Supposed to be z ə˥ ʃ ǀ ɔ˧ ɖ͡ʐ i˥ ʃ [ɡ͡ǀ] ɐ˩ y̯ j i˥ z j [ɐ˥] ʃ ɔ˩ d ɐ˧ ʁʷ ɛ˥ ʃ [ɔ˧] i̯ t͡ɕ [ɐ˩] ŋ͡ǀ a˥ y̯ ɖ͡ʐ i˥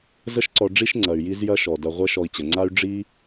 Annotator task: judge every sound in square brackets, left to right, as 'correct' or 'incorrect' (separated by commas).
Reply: incorrect, correct, correct, incorrect